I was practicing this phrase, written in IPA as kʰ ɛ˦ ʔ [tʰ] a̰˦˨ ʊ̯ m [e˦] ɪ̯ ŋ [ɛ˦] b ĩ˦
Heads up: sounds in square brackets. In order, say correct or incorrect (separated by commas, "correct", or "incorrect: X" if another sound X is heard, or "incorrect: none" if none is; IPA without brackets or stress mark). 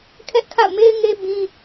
incorrect: kʰ, correct, incorrect: e˦